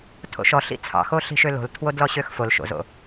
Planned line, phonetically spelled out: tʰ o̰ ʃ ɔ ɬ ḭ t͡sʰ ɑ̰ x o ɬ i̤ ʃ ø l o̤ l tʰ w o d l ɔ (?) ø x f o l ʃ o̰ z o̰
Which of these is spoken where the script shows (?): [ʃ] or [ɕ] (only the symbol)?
ɕ